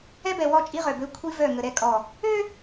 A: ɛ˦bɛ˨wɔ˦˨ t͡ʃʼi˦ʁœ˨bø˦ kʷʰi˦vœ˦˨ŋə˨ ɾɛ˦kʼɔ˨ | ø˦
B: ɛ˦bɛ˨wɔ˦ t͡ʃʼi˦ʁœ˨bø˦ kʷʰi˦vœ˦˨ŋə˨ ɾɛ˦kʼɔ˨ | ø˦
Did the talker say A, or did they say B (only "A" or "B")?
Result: A